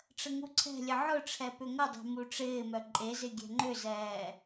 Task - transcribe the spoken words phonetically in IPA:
ʈ͡ʂ ə ŋ u ǀʰ ɛ̤ lʲ ə ʕ ʊ ʈ͡ʂʰ ɛ p ʏ ŋ ə dˤ ɛ̤ m u ʈ͡ʂ ɪː m œ ǃʼ e z ɪ ɡʲ ɛ̤ ŋ͡ǃ ʏ z ɛː

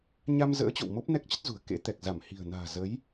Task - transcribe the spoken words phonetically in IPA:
ɲ a˧ m z ə̰ː˧˥ t͡ɕ o̰˧˨ w m o˦˥ p̚ n ɛ˦˥ k̚ t͡ɕ ə˦˥ t̚ z ṳ˨˩ ə̯ k ḛ˧˥ t̪ ɛ˨˩ k̚ z a˧˩ m h i̤˨˩ ə̯ n a̤ː˨˩ z ə˨˦ j

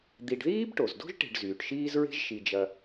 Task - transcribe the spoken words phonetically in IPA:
d̪ i˨ ɖ ð iː˥ b ʈ o˩ z d o̤˥ ʒ ʈ e̤˨ ɖ z yː˩ ʈ ʃ iː˦ z ɹ e̤˦ ʒ ʃ i˨ d͡ʒ ɐ˨

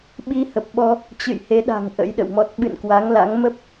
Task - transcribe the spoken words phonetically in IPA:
ɓ i˧ h ə˨˩ p̚ ɓ ɔ˧ | t͡ɕ ɨ̰˧˨ j h e˨˦ ɗ a̤˨˩ ŋ ʔ ə̰˧˥ j ɗ ə̰˧˨ w m ɔ˦˥ t̚ ɓ ɨ̰˧˨ n k w a˨˦ ŋ l a̰˧˥ ŋ m ə˦˥ p̚

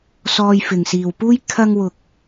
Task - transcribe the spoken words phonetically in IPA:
s ɔː˧ j f ɪ˨ ŋ s iː˨ w p uː˥ j kʰ ɐ˧ ŋ w ʊ˨ k̚

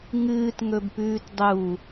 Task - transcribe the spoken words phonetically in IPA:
ŋ ɨː t ŋ ɵ b p ʉː t dˤ u

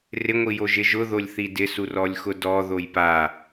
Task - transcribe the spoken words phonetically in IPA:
r ɪ ŋʷ i j o ʒ ɪ ʒ ʊ ð o lʲ θ i d ɪ s u r ɔ lʲ x ʊ d ɔ ð o j p a

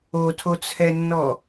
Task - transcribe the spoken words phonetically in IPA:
o tʰ o t͡sʰ ɛ nː ɔ

